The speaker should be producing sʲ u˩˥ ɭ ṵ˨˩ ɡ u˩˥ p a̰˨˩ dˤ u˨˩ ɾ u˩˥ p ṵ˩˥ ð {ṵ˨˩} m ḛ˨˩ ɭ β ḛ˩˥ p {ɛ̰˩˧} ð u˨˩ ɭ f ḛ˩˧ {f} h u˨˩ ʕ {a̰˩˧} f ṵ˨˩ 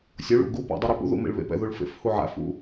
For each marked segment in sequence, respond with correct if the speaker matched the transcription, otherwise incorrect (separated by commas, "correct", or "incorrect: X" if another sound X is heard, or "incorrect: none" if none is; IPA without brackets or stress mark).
correct, incorrect: ɛ̰˨˩, correct, incorrect: a̰˩˥